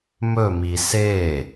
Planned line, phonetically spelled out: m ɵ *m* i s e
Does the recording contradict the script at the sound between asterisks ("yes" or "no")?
no